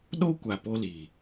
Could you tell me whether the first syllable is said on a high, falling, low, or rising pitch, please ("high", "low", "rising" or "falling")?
high